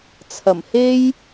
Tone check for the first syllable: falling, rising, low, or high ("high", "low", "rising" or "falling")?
low